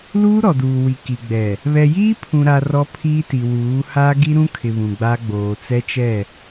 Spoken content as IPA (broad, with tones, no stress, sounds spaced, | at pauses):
l uː˦ ɾ ɔ˨ d uː˨ w i˨ k i˨ ɡ͡b ɛ˨ | β ɛ˨ j iː˦ pʰ ũ˨ ɾ a˨ r ɔ˦ pʰ iː˦ t i˨ w uː˨˦ h a˦ ɡ i˦ ɾ ũ˦ kʰ ɪ˨ β ũ˨ ɡ͡b a˦ ɡ͡b oː˨ t͡s ɛ˦ t͡ʃ ɛ˦˨